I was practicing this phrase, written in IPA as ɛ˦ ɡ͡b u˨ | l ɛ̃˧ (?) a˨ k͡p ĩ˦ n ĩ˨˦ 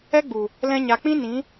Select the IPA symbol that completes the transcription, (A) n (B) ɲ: B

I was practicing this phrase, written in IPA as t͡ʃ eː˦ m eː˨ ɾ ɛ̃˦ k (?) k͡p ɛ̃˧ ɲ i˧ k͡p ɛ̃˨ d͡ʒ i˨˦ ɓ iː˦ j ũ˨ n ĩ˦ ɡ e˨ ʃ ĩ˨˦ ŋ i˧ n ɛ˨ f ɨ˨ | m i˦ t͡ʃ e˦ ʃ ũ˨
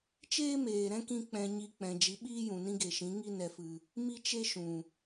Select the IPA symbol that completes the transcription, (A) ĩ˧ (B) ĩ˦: A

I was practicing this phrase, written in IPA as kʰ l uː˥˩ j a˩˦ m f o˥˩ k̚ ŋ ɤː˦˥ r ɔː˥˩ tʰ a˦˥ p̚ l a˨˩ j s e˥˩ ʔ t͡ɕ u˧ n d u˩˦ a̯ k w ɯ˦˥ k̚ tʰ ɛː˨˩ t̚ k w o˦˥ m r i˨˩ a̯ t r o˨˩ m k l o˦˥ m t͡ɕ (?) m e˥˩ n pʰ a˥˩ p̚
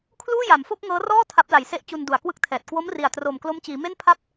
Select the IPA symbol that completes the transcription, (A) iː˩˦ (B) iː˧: A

